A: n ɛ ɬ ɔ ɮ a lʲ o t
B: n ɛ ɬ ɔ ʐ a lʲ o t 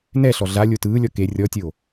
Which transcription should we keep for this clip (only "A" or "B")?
A